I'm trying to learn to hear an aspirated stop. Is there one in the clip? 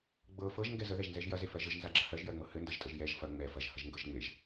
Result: no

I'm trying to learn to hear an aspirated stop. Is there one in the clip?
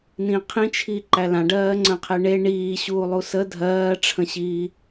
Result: yes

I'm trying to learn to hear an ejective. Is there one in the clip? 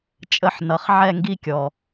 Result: yes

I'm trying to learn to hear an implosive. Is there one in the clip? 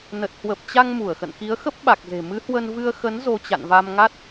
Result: yes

